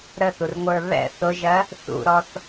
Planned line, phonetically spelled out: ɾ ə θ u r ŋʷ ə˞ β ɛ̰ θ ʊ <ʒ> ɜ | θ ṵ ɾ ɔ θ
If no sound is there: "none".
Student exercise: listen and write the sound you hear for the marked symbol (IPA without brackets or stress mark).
ʒ